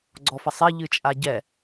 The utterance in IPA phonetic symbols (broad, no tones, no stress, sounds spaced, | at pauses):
ɡ͡ǀ ɔ f ɐ sˤ e ʎ ɨ t͡ʃʼ a ɟ ɛ